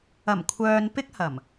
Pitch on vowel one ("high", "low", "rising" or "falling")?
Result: low